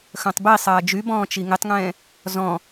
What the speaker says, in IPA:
xœ̃tˤbisˤɐː d͡ʒybɔ̃ː t͡ʃiŋɪtˤŋɛ̃ː | zɔ̃

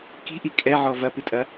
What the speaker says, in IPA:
ki̤ʔi kʼɛʕɔ vɐpɨtʼɐ

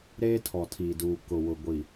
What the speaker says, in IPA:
ɾeː˦tʰɔ˨tʰiː˨duː˨ kʊ˨wʊ˨ ɡʷi˨

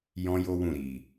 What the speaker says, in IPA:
jɔ̃˦jo˦wũ˦˨ ɾi˨

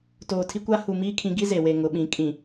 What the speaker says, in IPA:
toː˨tʰi˦kʷa˦ hu˨miː˦kʰĩ˨˦ ɡi˦ze˨ we˨ŋʊ˨ɓĩ˨˦ kʼĩ˨

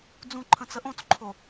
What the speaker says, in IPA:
d͡zũǃʰə̃ t͡səʔõt͡sǃʰo

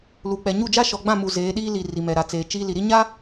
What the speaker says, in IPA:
lu˨k͡pɛ˨ ɲu˦˨d͡ʒa˦ ʃɔ˨ɡ͡bã˦˨mu˨ zeː˨˦ɗiː˦ li˨ ri˨mɛ˨ɾa˨t͡seː˨ t͡ʃiː˦ li˨ɾi˦ ɲa˦

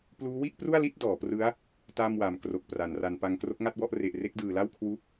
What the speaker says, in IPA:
pluː˦˥wi˥˩ʔpru˥˩a̯li˥˩t̚ dɔː˩˦prɯ˦˥a̯ | ta˥˩mwa˨˩m kro˨˩k̚ pra˩˦n ra˩˦npa˧ŋ kro˦˥k̚ŋa˥˩t̚wɔ˥˩ʔ re˨˩ʔre˦˥k̚dɯː˨˩la˥˩w kʰwu˦˥k̚

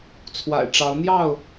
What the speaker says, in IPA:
t͡sʰwa̰˨˩ɪ̯ʈ͡ʂɑ˨˦ʊ̯ n̪jɑ˥˨ʊ̯

